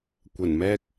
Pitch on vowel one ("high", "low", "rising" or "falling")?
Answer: low